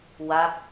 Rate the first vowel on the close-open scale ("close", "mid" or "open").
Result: open